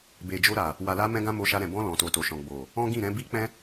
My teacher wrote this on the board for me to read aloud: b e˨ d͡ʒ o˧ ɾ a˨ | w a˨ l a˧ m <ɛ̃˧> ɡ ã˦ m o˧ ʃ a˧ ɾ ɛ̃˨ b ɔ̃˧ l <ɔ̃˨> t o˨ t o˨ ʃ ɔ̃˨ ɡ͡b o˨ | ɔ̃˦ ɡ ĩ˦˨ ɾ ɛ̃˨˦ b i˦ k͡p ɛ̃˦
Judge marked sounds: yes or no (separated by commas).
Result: no, yes